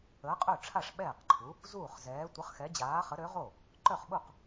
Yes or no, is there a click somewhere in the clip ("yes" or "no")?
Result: yes